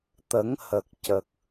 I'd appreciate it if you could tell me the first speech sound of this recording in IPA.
t̪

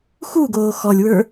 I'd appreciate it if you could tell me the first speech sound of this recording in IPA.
x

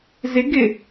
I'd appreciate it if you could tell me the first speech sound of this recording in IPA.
z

